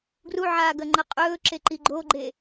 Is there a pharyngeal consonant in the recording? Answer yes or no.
yes